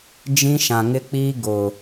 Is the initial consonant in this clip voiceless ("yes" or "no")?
no